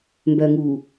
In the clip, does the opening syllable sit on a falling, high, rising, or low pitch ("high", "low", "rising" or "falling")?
low